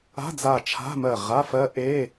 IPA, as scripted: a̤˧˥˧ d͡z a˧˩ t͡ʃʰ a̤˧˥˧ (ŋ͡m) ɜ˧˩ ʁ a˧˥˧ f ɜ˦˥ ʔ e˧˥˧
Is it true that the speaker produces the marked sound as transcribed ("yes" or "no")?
no